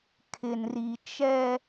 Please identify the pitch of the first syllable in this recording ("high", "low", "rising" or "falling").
low